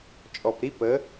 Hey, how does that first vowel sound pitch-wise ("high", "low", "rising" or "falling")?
low